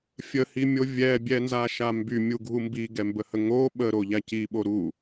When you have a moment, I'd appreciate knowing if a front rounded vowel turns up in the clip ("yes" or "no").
yes